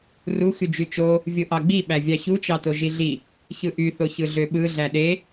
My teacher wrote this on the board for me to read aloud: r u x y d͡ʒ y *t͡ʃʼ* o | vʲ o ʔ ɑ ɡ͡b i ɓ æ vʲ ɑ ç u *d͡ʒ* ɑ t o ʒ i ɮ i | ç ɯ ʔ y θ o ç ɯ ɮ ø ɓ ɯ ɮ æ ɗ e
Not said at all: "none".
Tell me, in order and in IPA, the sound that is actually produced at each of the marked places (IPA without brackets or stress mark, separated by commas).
t͡ʃ, t͡ʃ